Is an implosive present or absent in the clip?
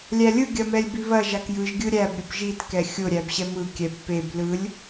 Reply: absent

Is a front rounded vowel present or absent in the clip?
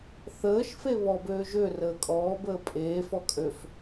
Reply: present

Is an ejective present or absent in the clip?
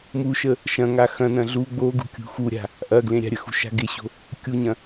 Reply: absent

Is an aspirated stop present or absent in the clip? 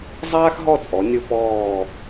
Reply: absent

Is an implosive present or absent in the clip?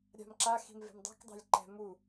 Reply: absent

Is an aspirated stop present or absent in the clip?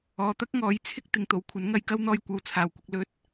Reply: present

